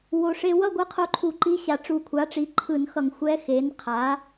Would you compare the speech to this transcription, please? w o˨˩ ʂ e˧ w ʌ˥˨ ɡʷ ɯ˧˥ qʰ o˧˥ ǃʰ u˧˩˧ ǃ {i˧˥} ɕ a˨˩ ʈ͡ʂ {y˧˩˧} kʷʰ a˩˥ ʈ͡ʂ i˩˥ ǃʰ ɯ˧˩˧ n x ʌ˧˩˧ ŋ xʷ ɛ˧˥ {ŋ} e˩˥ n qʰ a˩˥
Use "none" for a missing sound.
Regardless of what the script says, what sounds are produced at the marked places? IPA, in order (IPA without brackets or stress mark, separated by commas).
i˧˥, u˧˩˧, x